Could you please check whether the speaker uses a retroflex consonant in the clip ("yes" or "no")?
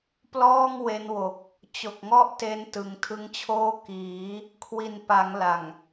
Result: no